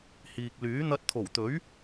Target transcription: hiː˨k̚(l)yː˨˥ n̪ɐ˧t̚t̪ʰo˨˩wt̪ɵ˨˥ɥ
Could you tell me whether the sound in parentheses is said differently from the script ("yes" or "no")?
no